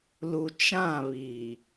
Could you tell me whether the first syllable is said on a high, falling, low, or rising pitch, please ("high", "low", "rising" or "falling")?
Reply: low